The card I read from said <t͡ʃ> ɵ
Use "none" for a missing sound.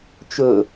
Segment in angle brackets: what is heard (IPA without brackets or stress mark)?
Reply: t͡ʃ